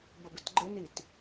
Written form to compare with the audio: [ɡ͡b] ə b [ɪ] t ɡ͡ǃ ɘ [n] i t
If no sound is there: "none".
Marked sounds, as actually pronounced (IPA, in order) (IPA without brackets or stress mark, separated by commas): b, ɪ, n